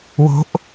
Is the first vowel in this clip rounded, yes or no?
yes